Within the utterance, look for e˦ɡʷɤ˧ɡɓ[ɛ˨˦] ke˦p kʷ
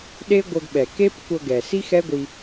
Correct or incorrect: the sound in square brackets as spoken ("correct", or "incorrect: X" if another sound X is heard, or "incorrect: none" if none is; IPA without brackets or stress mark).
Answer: incorrect: ɛ˨